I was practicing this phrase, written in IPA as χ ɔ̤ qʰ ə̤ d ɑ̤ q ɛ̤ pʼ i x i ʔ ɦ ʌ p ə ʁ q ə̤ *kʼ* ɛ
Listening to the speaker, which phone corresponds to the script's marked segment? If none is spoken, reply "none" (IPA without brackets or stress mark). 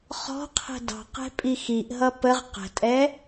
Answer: tʼ